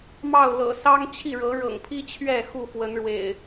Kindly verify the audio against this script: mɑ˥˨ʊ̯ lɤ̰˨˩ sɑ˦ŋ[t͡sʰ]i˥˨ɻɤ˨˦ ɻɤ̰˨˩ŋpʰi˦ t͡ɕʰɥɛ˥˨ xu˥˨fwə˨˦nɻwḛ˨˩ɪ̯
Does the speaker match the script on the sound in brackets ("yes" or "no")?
no